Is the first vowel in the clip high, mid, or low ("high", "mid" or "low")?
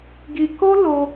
high